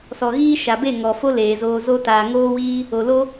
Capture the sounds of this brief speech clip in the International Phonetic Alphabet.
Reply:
s ɔ˨ ɣ iː˦ ʃ a˨ b e˦˨ ŋ ɔ˨ f o˦ l eː˨ z oː˧ z o˦ t aː˨ ŋ oː˦ w iː˦ | o˨ l o˦

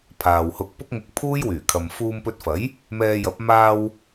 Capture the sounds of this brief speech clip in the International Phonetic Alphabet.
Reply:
pʰ aː˨ w h ʊ˧ k̚ p ʊ˥ k̚ ŋ ʊ˧ k̚ pʰ uː˥ j w yː˨˩ kʰ ɐ˨ m f uː˧ m p ɵ˧ t̚ f ɐ˨˥ j | m ɛː˧ j ɐ˨˥ p̚ m aː˧ w

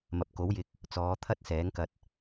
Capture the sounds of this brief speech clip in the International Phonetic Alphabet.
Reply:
m ɐ˨ p̚ k o˨˥ w j ɪ˧ k̚ | t͡s ɔː˨˧ t̪ʰ ɐ˥ t̚ s ɛː˨˥ ŋ k ɐ˧ t̚

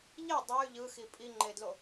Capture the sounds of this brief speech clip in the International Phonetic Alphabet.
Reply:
ʎ e dˤ ɛ y̯ ʎ ɯ x i pʼ i ŋ͡ǃ e d l o

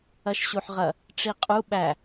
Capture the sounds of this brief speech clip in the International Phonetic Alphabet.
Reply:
ɐ ʃ ɕ u ħ ʁ ɐ | ʈ͡ʂ i qʼ u ɓ æ

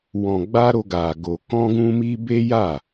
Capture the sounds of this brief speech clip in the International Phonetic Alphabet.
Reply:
w ɔ̃˧ ɡ͡b a˦ ɾ o˦ ɡ a˧ ɡ o˧ k ɔ̃˦ ɡ ũ˦ m i˦ b e˦ j a˦˨

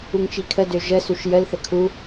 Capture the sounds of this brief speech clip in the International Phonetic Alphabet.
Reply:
u ŋ t͡ʃ i kʰ ə d ø ʒ ə s u ʃ j ə l θ ə kʰ u

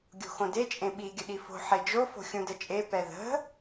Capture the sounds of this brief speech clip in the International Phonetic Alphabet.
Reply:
ɡʲ o̤ x õ d e t͡ʃʼ ẽ ɓ i ɡʲ ə ɗ i f o̤ ħ e d͡ʒ o f o̤ xʲ ũ d ə t͡ʃʼ e p ɛ ð ə̤

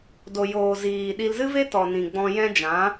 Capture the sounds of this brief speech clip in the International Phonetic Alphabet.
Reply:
d o˨ j oː˨ z iː˨ ɗ i˧ l z ɨ˦ v e˦ t ɔ˨ n ĩ˨ ɡ͡b ɔ̃˧ j ɛ̃˦ d͡ʒ ã˨˦

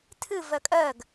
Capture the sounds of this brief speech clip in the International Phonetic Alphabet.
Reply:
tʰ ɨ v ɜ kʼ ɜ ɡ

